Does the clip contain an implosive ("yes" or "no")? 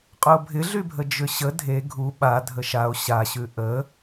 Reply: yes